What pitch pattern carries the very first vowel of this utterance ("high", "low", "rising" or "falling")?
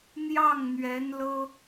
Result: falling